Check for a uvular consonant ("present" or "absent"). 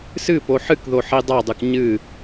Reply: absent